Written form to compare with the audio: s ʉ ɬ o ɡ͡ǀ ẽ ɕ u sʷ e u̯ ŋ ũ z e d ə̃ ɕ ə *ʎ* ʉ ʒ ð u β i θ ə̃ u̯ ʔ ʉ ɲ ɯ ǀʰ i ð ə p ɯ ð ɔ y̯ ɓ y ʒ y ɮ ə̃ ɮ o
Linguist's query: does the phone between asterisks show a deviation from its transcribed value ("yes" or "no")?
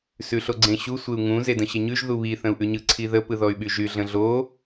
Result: yes